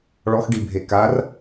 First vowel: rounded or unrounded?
rounded